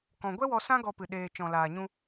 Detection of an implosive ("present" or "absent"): present